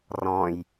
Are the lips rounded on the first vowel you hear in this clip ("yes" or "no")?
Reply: yes